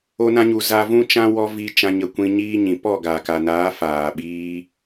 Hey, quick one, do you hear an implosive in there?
yes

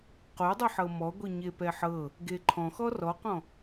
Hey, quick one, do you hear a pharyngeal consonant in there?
yes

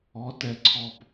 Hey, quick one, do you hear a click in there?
yes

